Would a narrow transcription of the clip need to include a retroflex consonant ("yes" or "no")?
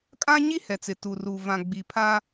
no